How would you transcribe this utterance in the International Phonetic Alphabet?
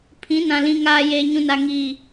pʰ ĩ˨˦ n ã˨ l ĩ˨ ŋ aː˨ j eː˨ ɲ ũ˨ n a˨ ŋ iː˨

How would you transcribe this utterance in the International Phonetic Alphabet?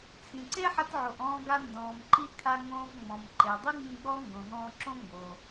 t͡sʰ ĩ˩ ǀ e˥ ħ ɐ˧ t ʕ o˩ ʔ ɔ̃ː˧ ɡ a˧ n d ɔ̃ː˩ m ǃ i˧ kʰ a˧ ŋ õː˧ v ŋ͡m ɔ̃˩ m ǃ e˩ dˤ i˥ ŋ͡m ĩ˧ ɡ͡b ɔ˥ ŋ ɡ õ˩ ɦ ɔ̃ː˧ ǁ õ˥ ŋ ɡ o˩

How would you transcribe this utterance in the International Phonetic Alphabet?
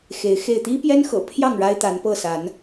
x e˨˦ ɪ̯ x e˥˨ ɪ̯ t̪ i˦ p j ɛ˦ n x ɤ̰˨˩ pʰ j ɑ˥˨ ŋ ɻ a˦ ɪ̯ t̪ a˨˦ n p ɤ˥˨ s a˨˦ n

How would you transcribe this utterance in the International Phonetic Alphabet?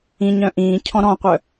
ĩ ɲ œ̃ ʔ ĩː cʰ ɔ̃ ɾ ɔ̃ qʷ œ

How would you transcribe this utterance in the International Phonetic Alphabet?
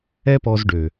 ɛ˦ p ɔ˧ z ɖ ø˨

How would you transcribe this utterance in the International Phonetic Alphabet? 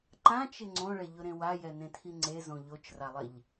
ǃ ã t͡ʃ ɪ ŋ͡ǀ õ ɭ ɛ ʎ ʊ ɾ ẽ w a j ɛ n ẽ tʰ i ŋ͡ǀ e z õ ʎ o t͡ʃ r a lˠ ɪ ʎ

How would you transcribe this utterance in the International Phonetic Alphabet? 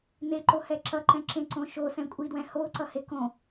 n e ǃ o h ɛ ǁ ʌ ǃ ɛ̃ ǁ ẽ ǀ õ ʃ o s ɛ̃ kʷʼ i d w ɛ̃ h o ǀ ʌ h e k õ

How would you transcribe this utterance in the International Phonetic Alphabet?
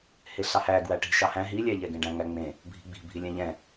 h e ɬ ɑ h æ ɡ w æ ʈ i̤ ʃ ɑ h æ̃ ɦ i lʲ æ ʎ ɛ ɡ ẽ ɖ æ̃ ŋ æ ŋ͡m ẽ | bʱ i̤ ɡ͡b i̤ bʱ i lʲ ɛ̃ ʎ ɛ̃

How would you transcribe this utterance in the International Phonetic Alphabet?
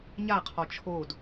ɲ a qʰ ɔ t͡ʃʰ o d

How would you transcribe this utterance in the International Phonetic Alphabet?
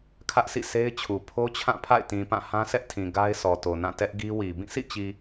kʰ ä˦ ʔ s ḭ˦˨ sʰ e˦ ɪ̯ t͡ɕʰ u˨ pʰ o˦ t͡ɕʰ ã˦˨ pʰ a̰˦˨ ɪ̯ t ĩ˨ p ã˦˨ h ã˦ s ɛ˦ ʔ tʰ ĩ˨ ɡ a˦ ɪ̯ sʰ ɔ˨ t o˨ n ã˦˨ t ɛ˦ ʔ ɡ i˦ w i˨ b ĩ˦˨ s ḭ˦˨ t͡ɕ i˨

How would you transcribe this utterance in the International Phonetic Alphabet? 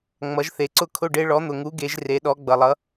ŋ͡m ʌ˩˥ ʒ θ e˩ ǀ ʊ˥˨ kʰ ʊ˥˨ ɖ e˧˥ ɭ ɔ˩˥ n̪ ʊ˩ ŋ u˩˥ ɡ e˩˥ ʒ r e˩˥ ɗ ɔ˩˥ ɡ͡b ʌ˩ lˠ ʌ˩˥

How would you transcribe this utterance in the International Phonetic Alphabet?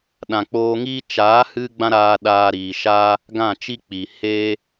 ɗ ã˨ k͡p oː˧ ŋ iː˦ t͡ʃ aː˨˦ h ɨ˦ ɡ͡b ã˦ ɾ aː˧ ɗ aː˦ ɾ iː˧ ʃ aː˦ | ɡ ã˦˨ t͡ʃ i˦ k͡p i˨ h eː˦

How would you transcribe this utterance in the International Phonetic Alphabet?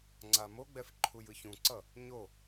ŋ͡ǀ a m o ɡ͡b ɛ f ǃʰ u j ɯ ç ũ ǀ ʌ | ɲ o

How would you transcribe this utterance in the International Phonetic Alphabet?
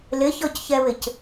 l ɪ ç ɔ c ç ɛ β ɪ c

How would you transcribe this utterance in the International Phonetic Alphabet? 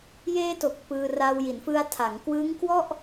j eː˧ t o˨˩ k̚ p ɯː˧ r a˧ w j i˩˦ n f ɯ˧ a̯ tʰ a˩˦ ŋ k w ɯː˦˥ ŋ k w ɔ˥˩ ʔ

